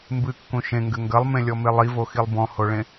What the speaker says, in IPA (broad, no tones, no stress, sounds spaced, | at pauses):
m b ɨ kː ũ ʃ ẽ ŋ ɡ ɘ ŋ ɡ ɐ lˠ m ẽ lʲ ɔ m e lˠ i v o x i lˠ b ɔ̃ h o ɭ ẽ